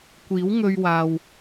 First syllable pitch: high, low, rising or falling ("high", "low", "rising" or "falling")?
rising